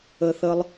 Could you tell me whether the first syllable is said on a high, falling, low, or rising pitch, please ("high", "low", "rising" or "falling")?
high